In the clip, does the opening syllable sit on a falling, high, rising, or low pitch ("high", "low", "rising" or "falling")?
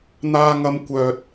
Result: high